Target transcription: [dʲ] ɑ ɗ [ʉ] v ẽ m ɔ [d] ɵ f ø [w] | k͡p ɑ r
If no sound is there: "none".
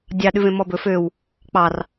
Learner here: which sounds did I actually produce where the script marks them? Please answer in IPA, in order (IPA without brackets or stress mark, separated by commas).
dʲ, ʉ, b, w